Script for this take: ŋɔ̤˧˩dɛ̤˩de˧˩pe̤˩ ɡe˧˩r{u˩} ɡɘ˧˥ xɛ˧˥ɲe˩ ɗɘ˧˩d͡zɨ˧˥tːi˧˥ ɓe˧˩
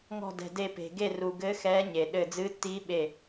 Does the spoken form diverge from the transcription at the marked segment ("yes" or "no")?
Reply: no